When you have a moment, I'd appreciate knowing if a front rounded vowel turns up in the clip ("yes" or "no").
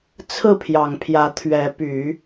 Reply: yes